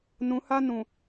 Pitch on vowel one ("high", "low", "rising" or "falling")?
rising